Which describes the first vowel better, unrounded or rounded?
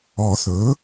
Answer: rounded